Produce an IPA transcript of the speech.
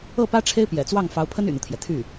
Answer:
ɤ˥˩pä˥ ʈ͡ʂʰe˥ɪ̯pjɛ̰˨˩t͡swɑ˥˩ŋ fɑ˧˥ʊ̯pʰə˥n y̰˨˩n̪u˦t̪ʰjɛ˩ t̪ʰy˥˩

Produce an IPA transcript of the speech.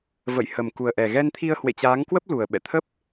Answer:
və̰˧˨j hə˨˩mku˨˩ə̯ʔɛ˨˩ ɣɛ˧nt̪ʰi˧ə̯ hwḛ˧˨t͡ɕaː˨˦ŋkwə˦˥p̚ lu˨˩ə̯ɓɛ̰˧˨ t̪ʰə˦˥p̚

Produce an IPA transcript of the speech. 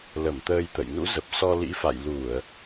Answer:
lə˧˩m t̪əː˧jt̪ə̰˧˨j nṵ˧˥zə˨˩p̚ sɔ˧lḭ˧˥fa̰˧˨j lu˧˩˨ə̯

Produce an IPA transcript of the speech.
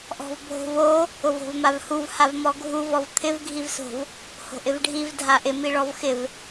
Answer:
ʔɔ̤vbʱo̤vo | ʊvo̤vmavhuv havmɔɡʱu vɔvt̪ʰɪv ɡʱivso̤v | ho̤ʔɪvɖʱiv dʱaʔɪ miɭɔvxɪv

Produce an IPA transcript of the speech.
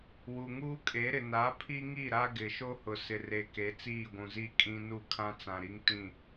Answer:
wu˨ŋuː˦kʼe˨˦ɾɪ˨ na˨˦pʰi˦ŋi˦˨ ɾa˦ɡɪ˨ ʃo˦hʊ˨sɪ˨re˨ ke˨˦t͡siː˦˨ɡʷũ˨zi˦ kʼĩ˦ nu˦˨kʰã˦t͡sã˨ɾi˦ŋ tĩ˦˨

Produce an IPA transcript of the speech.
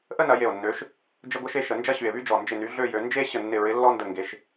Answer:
ʔə˥nɐ˨˦je˧˩o̯nːø˨˦ʃ | d͡ʒə˥ɡʷə˥ʃe˥ʃə˨˦ nd͡ʒɐ˥ɕy˧˩e̯βy˥d͡ʒɔ˧˩ nd͡ʒɪ˧˩ny˨˦ ɮø˥˧jø˨˦ nd͡ʒe˥ ɕə˧˩nːɪ˧˩ɹɪ˨˦ lːɔ˥ndə˧˩ŋɡe˨˦ʃ

